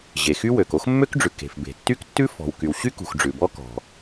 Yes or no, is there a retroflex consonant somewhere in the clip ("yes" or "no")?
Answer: yes